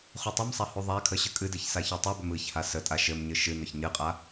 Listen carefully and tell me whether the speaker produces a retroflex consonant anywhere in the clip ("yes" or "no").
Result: no